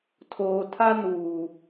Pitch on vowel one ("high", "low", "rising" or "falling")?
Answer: low